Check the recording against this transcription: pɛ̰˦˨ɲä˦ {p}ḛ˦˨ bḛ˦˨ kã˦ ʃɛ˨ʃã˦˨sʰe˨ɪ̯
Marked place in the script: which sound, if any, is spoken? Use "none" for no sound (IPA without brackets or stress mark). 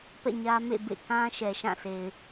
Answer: m